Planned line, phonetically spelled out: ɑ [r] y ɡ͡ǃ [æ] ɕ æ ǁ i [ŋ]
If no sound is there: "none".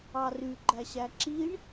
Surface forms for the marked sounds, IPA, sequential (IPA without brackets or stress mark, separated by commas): r, æ, ɳ